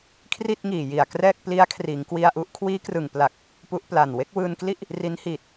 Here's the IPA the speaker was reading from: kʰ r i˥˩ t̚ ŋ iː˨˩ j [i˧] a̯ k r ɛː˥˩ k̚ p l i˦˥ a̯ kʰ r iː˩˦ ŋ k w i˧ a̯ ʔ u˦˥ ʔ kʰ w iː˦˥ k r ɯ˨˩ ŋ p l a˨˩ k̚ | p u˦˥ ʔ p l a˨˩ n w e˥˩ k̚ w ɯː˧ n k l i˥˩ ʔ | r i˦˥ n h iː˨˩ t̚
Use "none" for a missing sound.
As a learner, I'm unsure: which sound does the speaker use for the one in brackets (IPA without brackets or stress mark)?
i˨˩